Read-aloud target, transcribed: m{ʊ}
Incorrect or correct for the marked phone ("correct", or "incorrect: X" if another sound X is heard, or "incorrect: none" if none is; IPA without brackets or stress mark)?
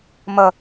incorrect: ə